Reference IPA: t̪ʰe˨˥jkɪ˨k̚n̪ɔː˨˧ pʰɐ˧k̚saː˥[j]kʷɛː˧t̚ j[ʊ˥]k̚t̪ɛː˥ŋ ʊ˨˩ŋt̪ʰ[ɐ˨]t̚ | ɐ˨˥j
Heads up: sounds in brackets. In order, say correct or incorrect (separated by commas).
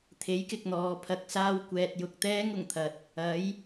incorrect, incorrect, incorrect